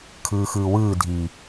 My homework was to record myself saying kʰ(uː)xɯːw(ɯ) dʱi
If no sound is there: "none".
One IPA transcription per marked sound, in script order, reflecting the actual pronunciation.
ɯː, ɯː

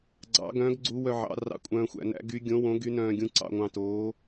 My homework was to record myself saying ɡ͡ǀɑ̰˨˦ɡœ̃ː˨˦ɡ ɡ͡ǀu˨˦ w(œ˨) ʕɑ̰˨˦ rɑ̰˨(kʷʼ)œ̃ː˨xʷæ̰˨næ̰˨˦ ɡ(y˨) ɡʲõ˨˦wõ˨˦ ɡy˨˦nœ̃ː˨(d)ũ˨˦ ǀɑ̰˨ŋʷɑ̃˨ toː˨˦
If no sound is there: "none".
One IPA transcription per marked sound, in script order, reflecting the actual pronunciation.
œ˨, kʷʼ, y˨˦, ɡʲ

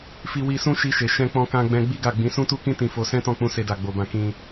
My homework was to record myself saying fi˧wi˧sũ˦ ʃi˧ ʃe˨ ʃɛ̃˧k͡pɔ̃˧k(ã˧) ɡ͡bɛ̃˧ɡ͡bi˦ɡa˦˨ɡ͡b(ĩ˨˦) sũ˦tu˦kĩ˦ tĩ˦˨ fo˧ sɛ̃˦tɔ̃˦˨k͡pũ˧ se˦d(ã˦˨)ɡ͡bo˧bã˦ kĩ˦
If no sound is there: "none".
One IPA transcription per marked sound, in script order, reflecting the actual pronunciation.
ã˧, ĩ˨˦, a˦˨

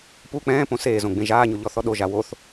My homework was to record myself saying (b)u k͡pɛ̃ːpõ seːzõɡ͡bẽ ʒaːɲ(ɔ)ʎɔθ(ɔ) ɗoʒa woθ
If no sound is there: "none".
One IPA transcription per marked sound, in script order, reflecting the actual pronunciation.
p, o, ɔ

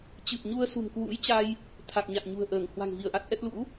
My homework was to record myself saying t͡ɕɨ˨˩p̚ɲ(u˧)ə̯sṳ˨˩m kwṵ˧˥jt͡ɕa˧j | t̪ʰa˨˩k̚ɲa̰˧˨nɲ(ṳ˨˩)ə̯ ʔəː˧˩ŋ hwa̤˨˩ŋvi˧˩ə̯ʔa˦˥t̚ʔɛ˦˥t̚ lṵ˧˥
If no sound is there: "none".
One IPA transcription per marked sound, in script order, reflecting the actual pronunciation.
u˧, ṳ˨˩

